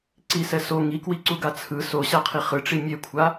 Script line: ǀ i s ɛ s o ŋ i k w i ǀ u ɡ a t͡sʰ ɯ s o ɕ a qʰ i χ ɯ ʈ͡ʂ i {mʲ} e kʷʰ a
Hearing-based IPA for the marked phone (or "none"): mʲ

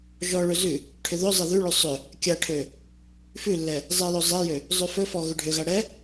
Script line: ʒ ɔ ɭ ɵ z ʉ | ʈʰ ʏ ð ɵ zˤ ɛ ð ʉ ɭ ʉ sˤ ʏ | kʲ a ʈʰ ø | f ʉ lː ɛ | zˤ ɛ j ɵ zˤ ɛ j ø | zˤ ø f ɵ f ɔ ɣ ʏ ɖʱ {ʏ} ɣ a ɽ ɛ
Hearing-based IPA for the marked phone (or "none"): ʏ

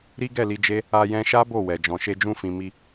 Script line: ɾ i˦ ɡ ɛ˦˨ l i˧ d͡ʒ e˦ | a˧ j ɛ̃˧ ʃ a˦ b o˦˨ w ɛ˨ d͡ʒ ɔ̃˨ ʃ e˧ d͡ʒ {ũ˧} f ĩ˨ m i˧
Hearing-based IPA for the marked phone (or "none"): ũ˧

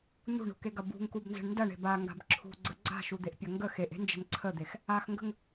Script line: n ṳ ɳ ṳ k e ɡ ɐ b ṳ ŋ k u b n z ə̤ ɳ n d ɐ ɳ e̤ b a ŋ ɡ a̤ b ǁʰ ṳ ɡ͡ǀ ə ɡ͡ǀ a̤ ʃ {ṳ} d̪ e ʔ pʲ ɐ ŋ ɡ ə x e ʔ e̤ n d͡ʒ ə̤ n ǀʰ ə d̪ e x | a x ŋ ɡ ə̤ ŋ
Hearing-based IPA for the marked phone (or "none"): u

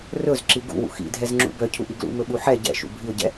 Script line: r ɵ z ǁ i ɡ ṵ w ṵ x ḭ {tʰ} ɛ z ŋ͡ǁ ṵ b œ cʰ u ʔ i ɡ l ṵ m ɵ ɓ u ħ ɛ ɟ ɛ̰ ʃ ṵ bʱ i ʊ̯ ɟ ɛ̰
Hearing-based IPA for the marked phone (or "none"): dʱ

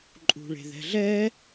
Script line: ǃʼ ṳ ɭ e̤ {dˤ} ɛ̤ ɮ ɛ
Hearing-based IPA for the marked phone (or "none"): ð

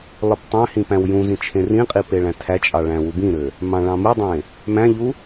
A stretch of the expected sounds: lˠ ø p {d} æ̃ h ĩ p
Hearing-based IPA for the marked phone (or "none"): tˤ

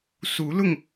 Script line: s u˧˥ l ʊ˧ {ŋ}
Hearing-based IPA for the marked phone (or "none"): ŋ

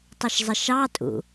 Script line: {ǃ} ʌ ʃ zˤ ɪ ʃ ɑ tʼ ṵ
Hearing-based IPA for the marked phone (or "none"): tˤ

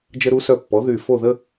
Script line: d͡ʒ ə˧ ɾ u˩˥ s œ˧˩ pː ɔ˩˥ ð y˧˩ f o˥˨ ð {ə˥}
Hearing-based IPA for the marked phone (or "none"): ə˥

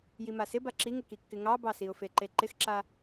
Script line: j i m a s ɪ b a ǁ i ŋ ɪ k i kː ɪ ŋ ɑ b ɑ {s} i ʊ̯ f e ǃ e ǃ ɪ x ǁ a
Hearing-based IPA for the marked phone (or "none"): s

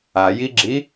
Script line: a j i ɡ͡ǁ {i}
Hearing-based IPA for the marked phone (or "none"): i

